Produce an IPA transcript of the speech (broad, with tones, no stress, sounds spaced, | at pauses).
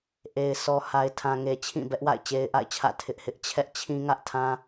ʔ e˨ ɪ̯ s ɔ˨ h a˨ ɪ̯ tʰ ã˨ ŋ e˨ t͡ɕʰ ĩ˦˨ b ɛ˦ ʔ w a̰˦˨ ɪ̯ t͡ɕ e˦ ɪ̯ ʔ a̰˦˨ ɪ̯ t͡ɕʰ ä̰˦˨ tʰ ɪ˦ ʔ h ɪ˦ ʔ t͡ɕʰ ɛ˦ ʔ t͡ɕʰ ĩ˦ ŋ ä˦ ʔ tʰ ã˦